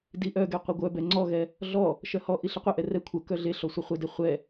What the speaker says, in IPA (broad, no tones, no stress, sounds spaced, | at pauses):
d i ʔ œ ɡ ɛ qʷ e ɡʷ œ b ɛ ŋ͡ǀ ɔ ɣ ɛ | ɮ ɔ | ʃ œ h ɔ ʔ i ɬ ə qʷ ɛ ʔ ɛ r ɛ kʷʰ ə k œ ɮ e ɬ ɔ sʷ ə χʷ ə d e χʷ ɛ